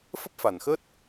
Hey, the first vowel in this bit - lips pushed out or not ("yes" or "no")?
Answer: no